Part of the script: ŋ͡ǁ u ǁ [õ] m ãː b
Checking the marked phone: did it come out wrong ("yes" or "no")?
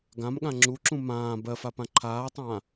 yes